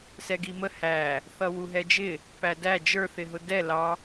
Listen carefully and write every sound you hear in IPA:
s ɛ ɡ i m ə h æ | θ ʌ w u ɦ ɛ d͡ʒ ɪ | p æ d æ d͡ʒ ə˞ θ ɪ ɦ ʊ d ɛ l ɑ

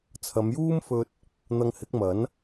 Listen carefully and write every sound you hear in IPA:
t͡sʰ ɐ˨˧ m j uː˥ m f ɵ˧ t̚ | n̪ ɐ˧ ŋ h ɪ˨˥ k̚ m ɐ˨˥ n

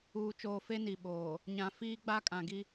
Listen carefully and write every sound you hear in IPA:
uː˨ t͡ʃ oː˨ f e˦ n i˨ ɓ oː˨ | ɲ ã˨ f iː˦ ɡ͡b a˦ kʼ ã˨ ɡ i˦

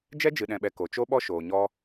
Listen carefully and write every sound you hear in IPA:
d͡ʒ ɛ˦ d͡ʒ ɨ˨ ɗ ɛ̃˨ ɓ ɛ˨ k o˨ t͡ʃ o˦ ɓ ɔ˦ ʃ oː˨ ɲ ɔ˧

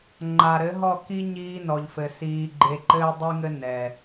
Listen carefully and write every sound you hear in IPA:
ŋ͡ǃ a˨ ɾ ɘ˨˦ ɦ ɔ˦˨ k i˦ ɲ iː˦ n ɔ˨ ʎ f ɘ˨ s iː˧ ɡ͡ǃ e˧ ǃ ɘː˦ dˤ i˦ ŋ ɘ˦ n ɛ˨

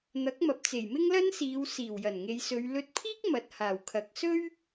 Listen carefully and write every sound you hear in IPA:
n̪ ɐ˨˥ k̚ m ɐ˨ p̚ t͡s e˨˩ j m ɪ˥ ŋ l ɐ˥ n s iː˨˧ w s iː˨˩ w j ɐ˨˩ n ŋ e˨˧ j s ɵ˨˧ ɥ l ɵ˧ t̚ pʰ iː˥ k̚ m ɐ˨ t̚ h aː˨˩ w kʰ ɐ˨ k̚ s ɵ˥ ɥ

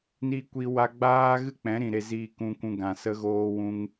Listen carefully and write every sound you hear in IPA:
n i˧ kʷ i˧ w a˧ ɡ͡b aː˦ ɣ ɨ˦ k͡p ɛ̃˨˦ ɾ ĩ˨ ɾ e˧ z iː˧ k ũ˧ kʷ ũ˧ ɡ ã˨ s ə˧ ɣ oː˧ w ũ˧ ŋ

